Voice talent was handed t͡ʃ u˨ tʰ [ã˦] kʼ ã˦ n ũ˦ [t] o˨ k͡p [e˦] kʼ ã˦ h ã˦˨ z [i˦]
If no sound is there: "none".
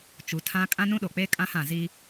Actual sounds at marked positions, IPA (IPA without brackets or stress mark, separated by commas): ã˦, ɗ, e˦, i˦